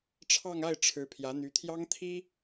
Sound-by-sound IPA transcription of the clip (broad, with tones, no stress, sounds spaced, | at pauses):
ʈ͡ʂʰ ɑ˥˧ ŋ a˥˩ ɪ̯ ʈ͡ʂʰ ɻ̩˧˥ pʰ j ä˧˥ n̪ y˧˥ t̪ʰ j ɑ˥ ŋ t̪ʰ i˥